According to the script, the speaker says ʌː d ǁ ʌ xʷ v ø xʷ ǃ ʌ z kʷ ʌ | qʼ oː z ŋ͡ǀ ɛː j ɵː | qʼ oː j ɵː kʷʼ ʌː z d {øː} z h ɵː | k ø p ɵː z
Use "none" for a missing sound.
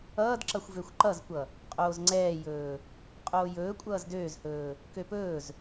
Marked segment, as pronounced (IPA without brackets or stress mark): øː